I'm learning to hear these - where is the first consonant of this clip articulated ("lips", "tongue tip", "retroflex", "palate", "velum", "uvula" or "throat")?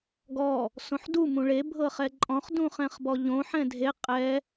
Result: velum